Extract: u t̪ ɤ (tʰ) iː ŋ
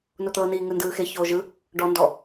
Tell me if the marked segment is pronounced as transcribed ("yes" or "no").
no